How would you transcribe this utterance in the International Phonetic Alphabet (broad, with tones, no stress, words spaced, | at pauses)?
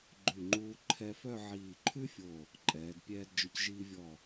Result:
ɡ͡ǃʉ˧˩ŋ͡ǃuː˧ ǃʰɛ˧fœ˥˧ ʕiː˧˩ǃʰʉ˥fʲo˧˩ | ǃʼɛː˩˧d pʲɛː˧dd͡ʒʊ˧cʒiː˧vʲɔ˧˩